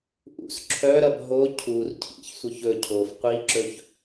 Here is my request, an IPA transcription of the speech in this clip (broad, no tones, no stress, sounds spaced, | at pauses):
ʔ ṵ s ǁʰ œ ɾ ɐ b ɦ o cʰ u r cʰ ḭ ç sʷ œ ç ɵ cʰ o f qʷ i ǁ ɵ ç